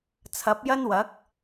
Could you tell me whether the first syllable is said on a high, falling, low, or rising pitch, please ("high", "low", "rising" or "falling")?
rising